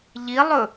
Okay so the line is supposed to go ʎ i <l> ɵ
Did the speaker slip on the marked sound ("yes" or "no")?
yes